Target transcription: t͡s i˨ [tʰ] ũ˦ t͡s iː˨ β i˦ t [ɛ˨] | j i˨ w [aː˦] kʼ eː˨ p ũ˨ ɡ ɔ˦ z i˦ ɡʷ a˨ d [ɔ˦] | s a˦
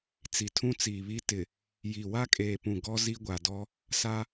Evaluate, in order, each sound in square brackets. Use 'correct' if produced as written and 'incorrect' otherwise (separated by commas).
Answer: correct, incorrect, incorrect, correct